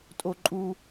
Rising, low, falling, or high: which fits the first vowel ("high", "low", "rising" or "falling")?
high